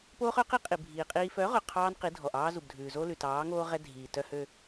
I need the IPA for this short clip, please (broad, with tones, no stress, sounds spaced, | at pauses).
p oː˦ χ œ˨˦ q i˦ qʼ i˨ bʱ iː˨ qʼ iː˦ f œ˨˦ ʁ ɵ˨ qʰ ɑː˦ n q i˨˦ dʱ ɔ˨ ʔ ɑː˦ z u˨ b dʱ ʉː˨ z o˦ l ʉ˨ t ɑː˨˦ ŋ oː˦ ʁ ɛ˦ dʱ iː˨ t œ˦ h ø˦